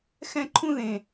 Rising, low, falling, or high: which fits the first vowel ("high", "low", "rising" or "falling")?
high